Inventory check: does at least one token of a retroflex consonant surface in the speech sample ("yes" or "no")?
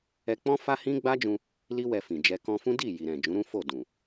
no